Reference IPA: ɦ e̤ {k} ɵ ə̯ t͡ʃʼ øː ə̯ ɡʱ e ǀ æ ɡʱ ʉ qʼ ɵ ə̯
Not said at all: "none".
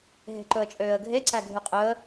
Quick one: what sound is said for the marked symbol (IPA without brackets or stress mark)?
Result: ǃ